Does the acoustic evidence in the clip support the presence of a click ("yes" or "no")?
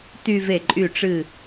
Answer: yes